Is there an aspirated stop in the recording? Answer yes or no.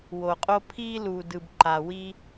yes